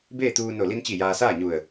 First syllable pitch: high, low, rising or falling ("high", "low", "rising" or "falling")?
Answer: falling